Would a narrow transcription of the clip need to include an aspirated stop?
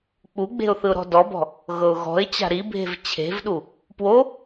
yes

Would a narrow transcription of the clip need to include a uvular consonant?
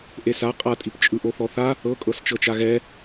yes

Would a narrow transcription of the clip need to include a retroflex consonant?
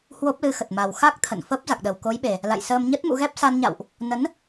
no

